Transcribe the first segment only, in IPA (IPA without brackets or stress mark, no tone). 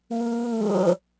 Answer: w